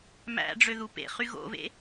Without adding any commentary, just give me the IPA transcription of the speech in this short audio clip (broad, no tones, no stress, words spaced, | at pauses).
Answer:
mæ̰ɖ͡ʐøðu pḛχy ɣo̰vḛ